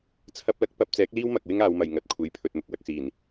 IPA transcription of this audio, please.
t͡sʰ ɐ˥ p̚ l ɐ˥ k̚ p ɐ˧ p̚ t͡s ɛː˨˥ k̚ l iː˥ w m ɐ˨ k̚ w ɪ˥ ŋ aː˨˧ w m ɐ˨ j ŋ ɐ˨ t̚ kʷʰ e˨˧ j pʰ ɵ˨ t̚ m ʊ˨ k̚ w ɐ˧ k̚ s iː˨˩ n

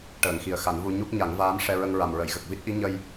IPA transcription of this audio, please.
ʈ əː˨˩˨ ŋ x i˨˩ ə̯ x a˨˩˦ n v u˧ ɲ u˦˥ k̚ ɲ a˨˩˦ ŋ v aː˧˥ m ʂ ɛ˧ ɹ ə˧ ŋ ɹ a˨˩ m ɹ ə˨˩˨ j ɣ ə˨˩ k̚ v i˦˥ t̚ ʔ i˧˥ ɲ ə˧ j

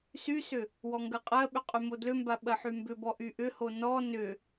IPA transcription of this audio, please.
s y s ʏ | w ɔ ŋ ɡ ɜ qʼ ɜ ɓ ʏ qʼ ʏ m o d l ʏ m b a ɓ ɜ ħ y m b ʏ b ɔ ʔ y ʔ ʏ h o n ɔ n ʏ

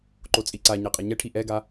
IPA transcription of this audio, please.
ǃ o t͡sʼ i ǀ a ɲ a qʼ ɛ ɲ ɛ ʈʰ i ʔ ɛ ɡ a

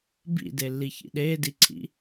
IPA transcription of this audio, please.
b ḭ d e lː i ç ḭ ɗ eː d i ǀʰ ḭ

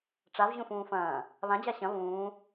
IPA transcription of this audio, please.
ʈ͡ʂ a v ʑ ũ f ũː f ɐ̃ː | β ã d͡ʑ a ɕ ɐ̃ β ũː

